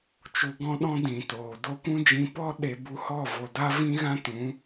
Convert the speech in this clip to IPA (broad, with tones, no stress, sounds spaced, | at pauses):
t͡ʃ u˧ ɡ ɔ̃˦ ɗ ɔ̃˦ d ĩ˨ t oː˨ d o˦ kʷ ũ˦ d͡ʒ ĩ˧ p ɔ˦ ɗ e˧ b u˧ h ɔ˦˨ v o˨ d a˦ v ĩ˦ ɣ ã˦ t ũ˨˦